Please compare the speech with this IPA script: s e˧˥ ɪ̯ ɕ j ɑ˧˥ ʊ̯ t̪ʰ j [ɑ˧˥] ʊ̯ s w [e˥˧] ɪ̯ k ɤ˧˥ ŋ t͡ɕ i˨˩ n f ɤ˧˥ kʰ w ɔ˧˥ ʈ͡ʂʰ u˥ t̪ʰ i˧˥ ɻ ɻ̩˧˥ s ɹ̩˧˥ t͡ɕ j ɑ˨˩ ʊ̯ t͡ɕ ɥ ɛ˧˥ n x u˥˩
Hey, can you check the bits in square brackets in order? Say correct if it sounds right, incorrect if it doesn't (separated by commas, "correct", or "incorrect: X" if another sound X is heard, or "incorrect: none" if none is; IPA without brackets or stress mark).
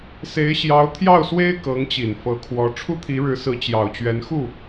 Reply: incorrect: ɑ˥˩, incorrect: e˥